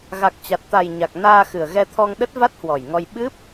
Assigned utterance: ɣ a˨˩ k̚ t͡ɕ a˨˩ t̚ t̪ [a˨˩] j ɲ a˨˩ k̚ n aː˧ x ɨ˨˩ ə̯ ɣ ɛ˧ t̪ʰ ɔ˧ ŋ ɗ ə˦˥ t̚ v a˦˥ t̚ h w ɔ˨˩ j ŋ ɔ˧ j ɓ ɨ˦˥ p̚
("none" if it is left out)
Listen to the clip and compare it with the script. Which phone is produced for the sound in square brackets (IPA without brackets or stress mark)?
a˨˩